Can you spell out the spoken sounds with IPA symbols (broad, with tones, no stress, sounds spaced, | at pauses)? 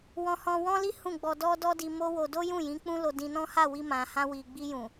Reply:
w ɔ̃˧ h ɔ̃˧ w ɔ̃˦ l i˦ h ũ˦˨ ɡ͡b ɔ˧ d ɔ˦ d ɔ˦ d i˧ m o˦ w o˧ d o˦ j ũ˦˨ j ĩ˨˦ k͡p ũ˦ l o˧ d ĩ˧ n ɔ̃˦ h a˦˨ w i˧ m ã˨ h ã˧ w i˨ ɡ͡b i˧ j ũ˨